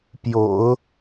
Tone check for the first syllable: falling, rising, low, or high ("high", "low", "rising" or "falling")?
low